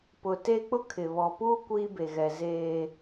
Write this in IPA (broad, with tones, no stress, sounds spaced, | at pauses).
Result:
p ʊ˨ t e˦ k͡p ʊ˦ kʰ ɪ˨ β ɔ˨ p uː˦ kʷ iː˦ b e˨ ɣ ɛ˨ z eː˦